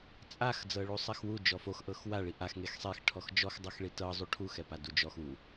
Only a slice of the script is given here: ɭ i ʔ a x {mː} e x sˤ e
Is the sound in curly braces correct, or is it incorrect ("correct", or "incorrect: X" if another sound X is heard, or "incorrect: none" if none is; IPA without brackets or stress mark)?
incorrect: ŋ